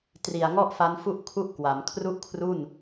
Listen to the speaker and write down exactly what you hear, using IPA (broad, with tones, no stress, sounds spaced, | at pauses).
t r i˨˩ a̯ ŋ ɔ˥˩ ʔ f a˦˥ n f u˥˩ ʔ kʰ u˥˩ ʔ k w a˩˦ m kʰ r u˥˩ ʔ kʰ r u˥˩ n